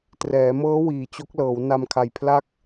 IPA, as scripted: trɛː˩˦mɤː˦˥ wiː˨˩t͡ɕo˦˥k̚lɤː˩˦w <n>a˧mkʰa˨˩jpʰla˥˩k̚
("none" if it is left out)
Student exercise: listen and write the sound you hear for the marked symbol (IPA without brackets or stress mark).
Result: n